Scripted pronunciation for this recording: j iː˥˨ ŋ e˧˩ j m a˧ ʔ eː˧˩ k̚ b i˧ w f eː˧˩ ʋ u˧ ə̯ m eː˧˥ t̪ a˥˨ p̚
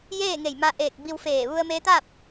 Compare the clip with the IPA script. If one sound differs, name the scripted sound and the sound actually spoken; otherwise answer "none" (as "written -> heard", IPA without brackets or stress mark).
iː˥˨ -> eː˥˨